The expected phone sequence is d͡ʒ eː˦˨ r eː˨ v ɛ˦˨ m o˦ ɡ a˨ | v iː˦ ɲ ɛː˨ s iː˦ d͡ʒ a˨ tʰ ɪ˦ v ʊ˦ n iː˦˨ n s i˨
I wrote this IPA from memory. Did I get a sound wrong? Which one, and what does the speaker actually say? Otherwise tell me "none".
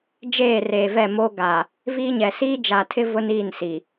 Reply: ɛː˨ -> ɛ˨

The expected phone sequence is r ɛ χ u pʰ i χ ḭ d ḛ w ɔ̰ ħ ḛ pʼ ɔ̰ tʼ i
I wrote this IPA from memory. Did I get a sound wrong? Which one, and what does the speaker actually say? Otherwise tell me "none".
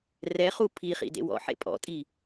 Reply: none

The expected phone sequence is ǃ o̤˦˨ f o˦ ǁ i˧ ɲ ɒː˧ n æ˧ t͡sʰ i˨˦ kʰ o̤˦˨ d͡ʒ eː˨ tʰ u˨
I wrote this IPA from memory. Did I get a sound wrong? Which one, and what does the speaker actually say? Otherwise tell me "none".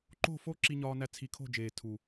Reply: none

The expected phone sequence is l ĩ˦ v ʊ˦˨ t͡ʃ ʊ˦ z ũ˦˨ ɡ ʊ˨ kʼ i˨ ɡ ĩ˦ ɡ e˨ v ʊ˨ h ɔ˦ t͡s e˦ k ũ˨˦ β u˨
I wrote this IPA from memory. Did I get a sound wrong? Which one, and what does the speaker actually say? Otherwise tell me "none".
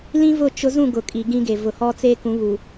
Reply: none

